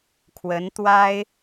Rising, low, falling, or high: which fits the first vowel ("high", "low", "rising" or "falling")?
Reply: rising